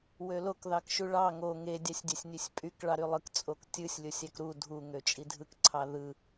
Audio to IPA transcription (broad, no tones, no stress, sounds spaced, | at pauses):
w ø l o k ð ɑ k ʃ u ɭ ɑ ŋ o ŋ e dʲ ɑ sʲ dʲ æ sʲ nʲ ø sʲ pʼ y k ɭ ɑ ɾ y lˠ ɯ k t͡sʼ o k tʲ ɯ sʲ lʲ o sʲ æ k ɾ u dʱ u ŋ ø t͡ʃʼ i dʱ ɯ k ǀʰ ɑ ð ɯ